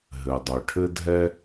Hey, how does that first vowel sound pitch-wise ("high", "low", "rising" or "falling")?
low